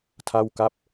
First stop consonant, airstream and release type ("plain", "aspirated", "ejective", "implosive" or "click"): aspirated